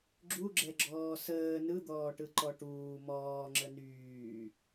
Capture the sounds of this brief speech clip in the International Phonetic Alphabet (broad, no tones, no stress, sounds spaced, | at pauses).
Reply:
ɡ͡ǁ u ɡ͡ǁ ɛ ɡ͡ǁ ɔː s əː n ɯ d̪ ɔː ʈ ɯ ǃ ɔ ʈ uː m ɔː ŋ͡ǁ ə n yː